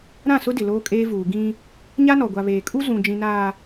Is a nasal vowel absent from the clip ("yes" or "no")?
no